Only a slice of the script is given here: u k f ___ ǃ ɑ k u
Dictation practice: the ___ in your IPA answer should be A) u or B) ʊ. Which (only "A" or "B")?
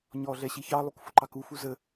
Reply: B